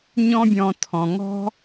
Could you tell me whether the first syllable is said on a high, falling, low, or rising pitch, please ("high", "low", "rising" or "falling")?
high